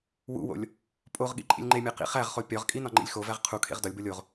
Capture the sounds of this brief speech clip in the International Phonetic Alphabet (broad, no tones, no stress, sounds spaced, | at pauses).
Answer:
w ṵ w o̰ lʲ | pʼ o ʁ ɠ ḭ ǃʼ ḭ lʲ ŋ͡ǃ e mʲ æ q ḭ χ æ ʁ χ o pʲ ɒ ʁ kʼ i n ɒ ŋ͡ǃ ḭ lʲ x o v æ ʁ qʰ u kʰ ḛ ʁ d ɒ lʲ b o lʲ o ʁ